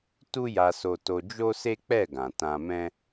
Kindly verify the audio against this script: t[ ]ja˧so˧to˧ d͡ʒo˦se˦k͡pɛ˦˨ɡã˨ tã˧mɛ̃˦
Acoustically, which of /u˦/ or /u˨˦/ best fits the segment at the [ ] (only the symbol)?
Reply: u˦